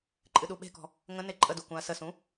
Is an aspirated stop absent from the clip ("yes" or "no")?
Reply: yes